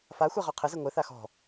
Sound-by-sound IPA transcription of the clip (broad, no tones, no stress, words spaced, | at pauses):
faxʷɛ ʁɔqʰɘzɘ ŋʷɘθa xɔ̤